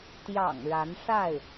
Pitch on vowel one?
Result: low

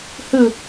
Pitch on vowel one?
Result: falling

